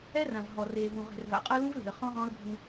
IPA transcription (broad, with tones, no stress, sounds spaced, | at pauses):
ɛ˦ r ã˨ v ɦ ɔ˨ r eː˨ v ũ˨ ʁ e̤˨ r v a̰˨ qʼ ɤ˦ l ũ˦ v l e̤˨ ə̯ χ ɔ̃˦ ʁ ɔ̃˦ ə̯ bʱ ũ˦